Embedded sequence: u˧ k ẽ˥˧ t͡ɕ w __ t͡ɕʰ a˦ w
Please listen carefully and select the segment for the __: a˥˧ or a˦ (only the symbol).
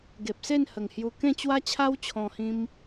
a˦